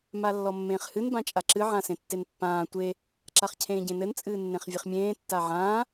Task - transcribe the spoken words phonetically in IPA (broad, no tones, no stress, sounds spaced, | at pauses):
m a lː ɔ mː ẽː χ h ɨ n b ã t͡ʃʼ a ǁ ɨ ʕ ã s ẽ tː e n pː ãː tʷ e | ǁ a χ cʰ ẽː ɟ ẽ n ɘ n t͡sʼ ɨː nː ẽ χ vʲ e χ mʲ ẽː tː a ʕ ãː